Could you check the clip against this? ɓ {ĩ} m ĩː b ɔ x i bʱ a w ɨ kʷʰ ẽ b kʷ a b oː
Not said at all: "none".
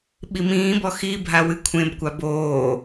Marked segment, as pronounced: i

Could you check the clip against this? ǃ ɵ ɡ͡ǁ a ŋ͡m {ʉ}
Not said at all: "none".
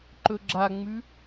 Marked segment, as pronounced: ʉ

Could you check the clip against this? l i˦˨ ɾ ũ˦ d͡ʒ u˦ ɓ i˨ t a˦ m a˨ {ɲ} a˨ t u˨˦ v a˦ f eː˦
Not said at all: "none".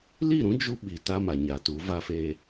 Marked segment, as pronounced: ɲ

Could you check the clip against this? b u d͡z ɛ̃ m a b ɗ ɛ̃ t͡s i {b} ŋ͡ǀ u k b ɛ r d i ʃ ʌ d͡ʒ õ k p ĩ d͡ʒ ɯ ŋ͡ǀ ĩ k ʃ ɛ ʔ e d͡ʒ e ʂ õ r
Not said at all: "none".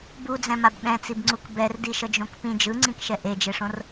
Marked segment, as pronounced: b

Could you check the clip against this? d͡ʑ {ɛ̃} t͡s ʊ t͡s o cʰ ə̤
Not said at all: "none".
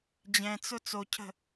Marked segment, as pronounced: ɛ̃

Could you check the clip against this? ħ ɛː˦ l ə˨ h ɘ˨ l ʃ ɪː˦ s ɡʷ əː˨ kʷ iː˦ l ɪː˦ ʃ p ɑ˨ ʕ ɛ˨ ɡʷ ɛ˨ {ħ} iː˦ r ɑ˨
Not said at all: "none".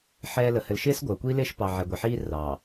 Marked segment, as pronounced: ħ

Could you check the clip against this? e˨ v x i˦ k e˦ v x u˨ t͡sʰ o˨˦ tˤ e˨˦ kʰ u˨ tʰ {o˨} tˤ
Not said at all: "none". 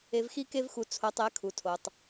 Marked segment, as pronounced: o˨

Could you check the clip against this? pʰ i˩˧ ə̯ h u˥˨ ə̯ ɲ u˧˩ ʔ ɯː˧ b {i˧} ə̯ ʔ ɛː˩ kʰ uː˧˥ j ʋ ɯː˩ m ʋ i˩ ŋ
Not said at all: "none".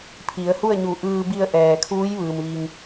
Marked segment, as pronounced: i˧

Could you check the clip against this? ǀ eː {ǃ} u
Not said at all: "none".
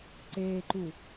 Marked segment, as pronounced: ǃ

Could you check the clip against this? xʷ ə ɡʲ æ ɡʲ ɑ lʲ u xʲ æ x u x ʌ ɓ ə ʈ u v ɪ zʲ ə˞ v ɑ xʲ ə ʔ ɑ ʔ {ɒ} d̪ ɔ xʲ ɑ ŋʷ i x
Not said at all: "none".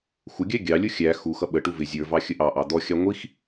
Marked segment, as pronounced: ɑ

